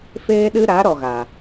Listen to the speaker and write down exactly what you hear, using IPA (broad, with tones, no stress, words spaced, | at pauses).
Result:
feː˦ɗɨ˦ ɾa˨˦ ɾɔ˨ɣa˨